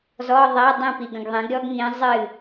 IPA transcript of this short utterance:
zɔ˧˥˧ðˤɛ˧˥˧ dˤĩ˥˩pi˨ɡə̃˨ɡ ðˤĩ˩˥ɡɾʲɔ˥ɡŋĩ˧˥ zˤɨ˥˩

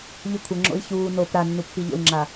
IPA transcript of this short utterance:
ʎɯkʷʰəŋ͡ǁo̰i̯ çuː nop ɾa nːupːiʎo̰y̯ŋ͡ǁa

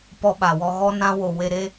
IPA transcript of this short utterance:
pɔ˦ɓa˨wɔ˧ ɣɔ˦nã˦ wo˨ we˧ɾe˦

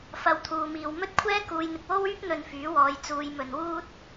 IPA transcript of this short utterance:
fɐ˨˧wt̪ʰuː˨miː˨w mɵ˥t̚kʷʰɛː˥kuː˨˧jn̪ɪ˨k̚ wo˥wyː˥p̚ n̪ɵ˧nfyː˨˥wɔː˨˧j t͡suː˨˧j mɵ˨˧n wuː˥t̚

